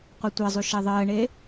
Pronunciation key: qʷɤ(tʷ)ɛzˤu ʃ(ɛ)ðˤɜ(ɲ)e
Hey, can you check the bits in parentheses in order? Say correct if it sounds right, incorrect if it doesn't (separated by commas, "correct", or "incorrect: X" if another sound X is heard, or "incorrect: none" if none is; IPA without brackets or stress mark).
correct, correct, incorrect: ɳ